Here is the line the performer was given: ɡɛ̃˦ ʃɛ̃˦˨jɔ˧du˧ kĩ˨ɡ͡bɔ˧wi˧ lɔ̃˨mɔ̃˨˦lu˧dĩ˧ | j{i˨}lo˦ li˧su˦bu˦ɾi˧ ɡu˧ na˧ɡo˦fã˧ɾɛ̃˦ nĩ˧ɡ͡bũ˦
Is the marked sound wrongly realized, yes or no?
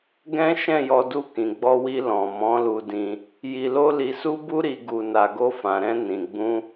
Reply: yes